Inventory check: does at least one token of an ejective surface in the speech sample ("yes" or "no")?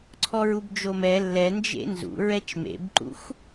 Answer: no